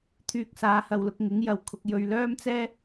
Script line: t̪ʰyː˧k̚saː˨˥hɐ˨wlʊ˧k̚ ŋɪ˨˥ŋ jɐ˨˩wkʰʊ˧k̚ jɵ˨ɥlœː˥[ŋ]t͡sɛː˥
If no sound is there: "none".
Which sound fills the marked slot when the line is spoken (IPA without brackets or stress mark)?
m